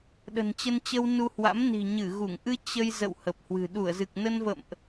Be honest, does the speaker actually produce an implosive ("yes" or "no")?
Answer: yes